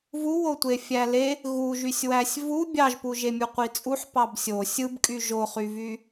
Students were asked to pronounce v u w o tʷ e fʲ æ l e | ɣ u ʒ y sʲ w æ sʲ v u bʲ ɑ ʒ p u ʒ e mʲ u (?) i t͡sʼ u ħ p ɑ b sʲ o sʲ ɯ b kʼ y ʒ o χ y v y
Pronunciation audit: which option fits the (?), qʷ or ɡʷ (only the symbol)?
qʷ